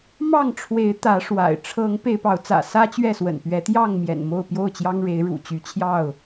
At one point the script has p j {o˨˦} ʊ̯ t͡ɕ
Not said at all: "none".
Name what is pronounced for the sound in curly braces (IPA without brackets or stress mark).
o˥˨